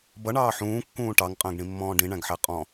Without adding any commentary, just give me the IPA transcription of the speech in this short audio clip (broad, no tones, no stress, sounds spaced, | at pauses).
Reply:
b ʌ ɳ ɑː ħ ũː kː ũː ʈ ɑ ŋ qʼ ə̃ː ɡ ɳ ĩ mː ɔ̃ː ɖ ĩ ɳ æ̃ ɡ ħ æ qʼ ɔ̃